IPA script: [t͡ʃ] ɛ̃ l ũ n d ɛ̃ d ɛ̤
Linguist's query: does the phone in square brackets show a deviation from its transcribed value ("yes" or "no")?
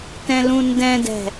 yes